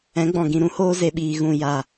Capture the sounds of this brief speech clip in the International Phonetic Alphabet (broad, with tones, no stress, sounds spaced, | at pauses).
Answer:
ɛ̃˨˦ ɡ͡b ɔ̃˨ ɡ ĩ˨ ɾ ũ˧ h oː˧ z e˨ ɓ iː˨ ɣ ũ˨ j a˨